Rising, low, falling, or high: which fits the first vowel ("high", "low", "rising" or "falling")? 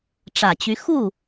low